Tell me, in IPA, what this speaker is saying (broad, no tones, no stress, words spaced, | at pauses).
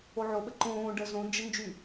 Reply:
oʕoɓə ǃõː ɖə zõnd͡ʒə nd͡ʒy